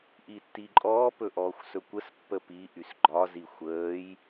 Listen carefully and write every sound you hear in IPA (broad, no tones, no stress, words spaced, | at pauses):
ʔitːiǃʼɔː pɵʔɔːxʷsɵkʷəs pːəpi ʔysɡ͡ǃɒ zixʷəːj